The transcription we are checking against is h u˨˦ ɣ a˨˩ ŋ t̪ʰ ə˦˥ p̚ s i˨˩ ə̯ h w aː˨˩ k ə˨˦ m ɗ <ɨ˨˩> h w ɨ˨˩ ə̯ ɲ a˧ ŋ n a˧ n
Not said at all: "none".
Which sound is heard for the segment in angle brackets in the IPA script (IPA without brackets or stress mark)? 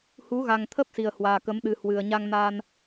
ɨ˨˩